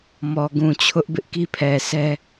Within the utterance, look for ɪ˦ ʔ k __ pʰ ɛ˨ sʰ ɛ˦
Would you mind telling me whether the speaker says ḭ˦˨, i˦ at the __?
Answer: i˦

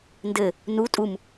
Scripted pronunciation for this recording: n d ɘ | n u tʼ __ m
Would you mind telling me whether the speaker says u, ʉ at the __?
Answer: u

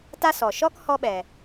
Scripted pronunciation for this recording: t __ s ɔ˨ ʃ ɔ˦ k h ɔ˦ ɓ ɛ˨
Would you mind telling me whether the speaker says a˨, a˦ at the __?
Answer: a˦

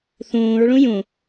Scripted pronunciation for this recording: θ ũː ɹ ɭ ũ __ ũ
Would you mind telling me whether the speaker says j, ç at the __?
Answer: j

